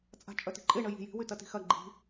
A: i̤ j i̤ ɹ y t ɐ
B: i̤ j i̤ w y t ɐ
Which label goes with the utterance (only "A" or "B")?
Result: B